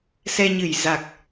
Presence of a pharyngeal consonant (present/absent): absent